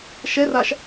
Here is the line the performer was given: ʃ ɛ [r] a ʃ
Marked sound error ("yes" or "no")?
no